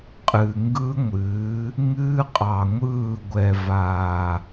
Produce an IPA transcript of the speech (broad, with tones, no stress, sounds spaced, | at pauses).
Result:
qʼ ɨ˨ ŋ ɡ ɯ˦ ŋʷ ɨː˨˦ | ŋ ɨː˦ qʼ ɑ˨ ŋʷ ɯː˦˨ ɡʷ ɛ˨ v aː˨